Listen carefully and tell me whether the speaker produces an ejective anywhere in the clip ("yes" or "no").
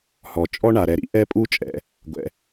yes